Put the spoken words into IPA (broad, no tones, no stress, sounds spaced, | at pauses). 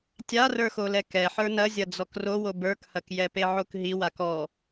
tʲ a r ə˞ x o l ɛ k ɛ ħ ə˞ n ɐ zʲ ɐ d͡z ɔ k r o w o b ə˞ k h ɐ k j ɛ p e ʕ o k ɦ i w a k ɔ